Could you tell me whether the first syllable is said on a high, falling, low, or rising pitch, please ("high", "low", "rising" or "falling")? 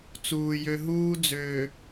low